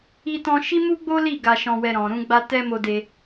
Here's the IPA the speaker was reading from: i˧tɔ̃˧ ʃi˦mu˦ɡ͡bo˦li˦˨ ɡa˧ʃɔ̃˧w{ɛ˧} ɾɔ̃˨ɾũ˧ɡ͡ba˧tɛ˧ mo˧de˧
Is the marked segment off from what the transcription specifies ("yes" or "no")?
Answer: no